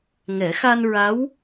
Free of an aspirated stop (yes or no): yes